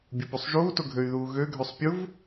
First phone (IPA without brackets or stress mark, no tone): bʲ